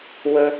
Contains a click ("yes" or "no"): no